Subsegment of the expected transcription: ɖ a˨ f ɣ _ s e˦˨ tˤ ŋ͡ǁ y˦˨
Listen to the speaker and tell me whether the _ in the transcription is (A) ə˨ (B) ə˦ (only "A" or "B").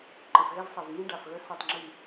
B